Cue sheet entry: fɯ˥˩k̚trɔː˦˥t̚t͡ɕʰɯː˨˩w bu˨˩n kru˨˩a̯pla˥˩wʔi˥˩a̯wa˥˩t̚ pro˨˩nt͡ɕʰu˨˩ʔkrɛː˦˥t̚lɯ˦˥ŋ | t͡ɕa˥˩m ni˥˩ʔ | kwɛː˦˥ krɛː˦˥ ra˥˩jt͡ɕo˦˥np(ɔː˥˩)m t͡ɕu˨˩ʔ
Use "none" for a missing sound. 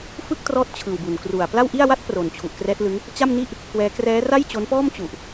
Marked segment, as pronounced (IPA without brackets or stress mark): ɔː˥˩